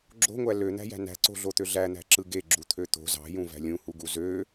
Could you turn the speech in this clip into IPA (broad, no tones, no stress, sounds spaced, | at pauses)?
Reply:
ɡ͡ǁ o̤ ŋʷ æ l ø n̪ æ̤ j æ̤ n æ̤ ǀ o̤ ɮ o t̪ ø ɮ æ n̪ æ̤ ǁ ɯ ɡ e ɡ͡ǁ u t̪ʰ ø t̪ o̤ z ɑ̤ j ũ v æ̤ lʲ ũ h u ɡ u z ø